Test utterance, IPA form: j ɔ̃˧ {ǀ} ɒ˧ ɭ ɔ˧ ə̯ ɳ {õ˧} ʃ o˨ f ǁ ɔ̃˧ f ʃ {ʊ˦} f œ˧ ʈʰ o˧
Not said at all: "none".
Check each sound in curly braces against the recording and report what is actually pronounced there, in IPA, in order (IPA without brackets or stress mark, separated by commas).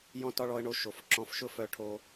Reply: t, o˧, ʊ˦